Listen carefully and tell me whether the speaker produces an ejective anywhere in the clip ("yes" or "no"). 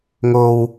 no